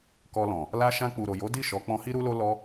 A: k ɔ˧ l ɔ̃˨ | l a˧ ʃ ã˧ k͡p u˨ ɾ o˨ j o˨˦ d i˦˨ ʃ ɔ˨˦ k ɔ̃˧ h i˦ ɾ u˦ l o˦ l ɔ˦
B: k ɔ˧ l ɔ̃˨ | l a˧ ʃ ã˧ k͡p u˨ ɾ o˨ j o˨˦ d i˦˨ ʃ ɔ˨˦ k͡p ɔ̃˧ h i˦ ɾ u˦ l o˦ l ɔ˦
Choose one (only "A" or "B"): B